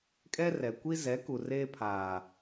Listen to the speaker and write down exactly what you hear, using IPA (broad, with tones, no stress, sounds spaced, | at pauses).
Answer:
kʼ ɛ˦ r ɛ˨ kʷ i˦ z ɛ˨˦ k u˨ r eː˦ pʰ aː˨